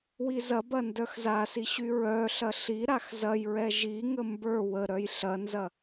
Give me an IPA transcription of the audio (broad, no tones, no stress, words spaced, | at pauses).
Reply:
wizɐbɐ ndœxzasi ɕyɹœɬɐ ɬi ɾaxzɐjɹɛ ʒiŋə mbə˞ wə ɾœjɬɐnzɐ